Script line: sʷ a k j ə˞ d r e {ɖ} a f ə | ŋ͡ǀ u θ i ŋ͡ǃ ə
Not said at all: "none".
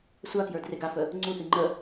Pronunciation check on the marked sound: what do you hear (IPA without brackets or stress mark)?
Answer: ɡ